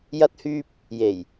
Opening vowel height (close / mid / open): open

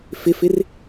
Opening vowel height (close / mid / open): close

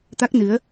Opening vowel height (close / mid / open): open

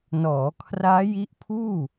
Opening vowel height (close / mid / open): mid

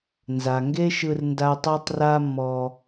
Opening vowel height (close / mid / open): open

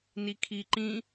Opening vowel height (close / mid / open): close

